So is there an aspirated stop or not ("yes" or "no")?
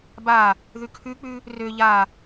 yes